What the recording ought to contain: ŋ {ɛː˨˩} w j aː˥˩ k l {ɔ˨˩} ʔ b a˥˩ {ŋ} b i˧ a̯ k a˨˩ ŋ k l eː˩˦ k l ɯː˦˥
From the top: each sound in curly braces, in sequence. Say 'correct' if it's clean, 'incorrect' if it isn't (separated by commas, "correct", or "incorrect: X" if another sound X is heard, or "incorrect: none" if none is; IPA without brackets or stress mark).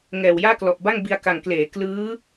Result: correct, correct, correct